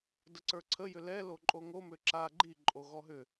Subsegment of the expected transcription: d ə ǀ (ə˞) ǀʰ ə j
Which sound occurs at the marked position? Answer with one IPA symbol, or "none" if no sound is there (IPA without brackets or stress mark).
ə˞